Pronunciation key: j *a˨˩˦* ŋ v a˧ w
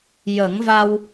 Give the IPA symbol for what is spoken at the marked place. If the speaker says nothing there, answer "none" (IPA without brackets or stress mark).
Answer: ə˨˩˦